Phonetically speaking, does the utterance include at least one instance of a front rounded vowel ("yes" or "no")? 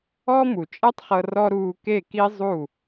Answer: no